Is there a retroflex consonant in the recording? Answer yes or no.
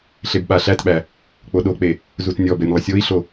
no